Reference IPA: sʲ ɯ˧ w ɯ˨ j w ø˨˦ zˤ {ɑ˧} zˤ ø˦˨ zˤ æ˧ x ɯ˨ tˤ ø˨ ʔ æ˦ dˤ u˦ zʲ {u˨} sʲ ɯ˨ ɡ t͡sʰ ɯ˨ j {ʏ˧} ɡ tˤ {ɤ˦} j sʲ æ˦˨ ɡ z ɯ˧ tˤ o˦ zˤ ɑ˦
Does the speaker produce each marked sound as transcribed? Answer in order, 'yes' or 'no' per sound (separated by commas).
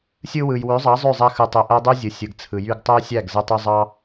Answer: no, no, no, no